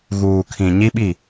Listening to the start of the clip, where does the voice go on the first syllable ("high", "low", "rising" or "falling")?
low